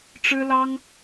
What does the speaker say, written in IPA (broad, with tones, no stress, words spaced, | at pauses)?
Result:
ʈ͡ʂɻ̩˥lɑ˥ŋ